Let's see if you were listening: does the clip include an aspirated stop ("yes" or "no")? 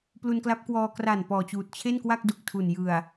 yes